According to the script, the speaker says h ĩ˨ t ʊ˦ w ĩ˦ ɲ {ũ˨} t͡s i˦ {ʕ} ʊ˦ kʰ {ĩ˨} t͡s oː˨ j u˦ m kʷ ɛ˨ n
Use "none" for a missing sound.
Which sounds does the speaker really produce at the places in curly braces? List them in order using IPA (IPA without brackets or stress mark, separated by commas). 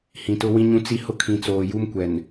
ũ˦, h, ĩ˨